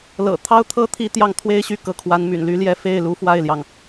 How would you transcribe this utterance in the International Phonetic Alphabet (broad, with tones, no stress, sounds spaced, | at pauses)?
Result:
l ɤ̰˨˩ t̪ʰ ɑ˥ ʊ̯ t̪ʰ ɤ˥ t̪ʰ i˥ t̪ j ɑ˥˩ ŋ t̪ʰ w e˥ ɪ̯ ɕ y˥˩ k ɤ˧˥ kʰ w a˧˥ n m y̰˨˩ n l y˧˥ l j ɛ˥˧ f e˥˩ ɪ̯ l u˧˥ f w a˥˩ ɪ̯ l j ɑ˩ ŋ